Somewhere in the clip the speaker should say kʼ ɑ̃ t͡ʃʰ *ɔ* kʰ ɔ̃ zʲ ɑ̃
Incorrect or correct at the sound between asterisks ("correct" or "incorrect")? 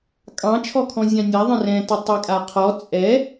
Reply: correct